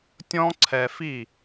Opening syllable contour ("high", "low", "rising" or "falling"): high